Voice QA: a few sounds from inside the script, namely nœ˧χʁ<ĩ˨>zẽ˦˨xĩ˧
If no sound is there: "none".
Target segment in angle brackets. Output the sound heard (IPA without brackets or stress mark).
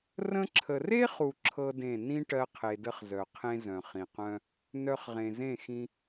ẽ˨